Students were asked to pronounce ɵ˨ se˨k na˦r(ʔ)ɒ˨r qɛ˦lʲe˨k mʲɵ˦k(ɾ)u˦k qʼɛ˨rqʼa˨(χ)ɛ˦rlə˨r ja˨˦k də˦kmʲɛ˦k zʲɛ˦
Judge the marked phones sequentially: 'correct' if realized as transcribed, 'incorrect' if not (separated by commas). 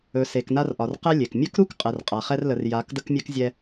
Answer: correct, correct, correct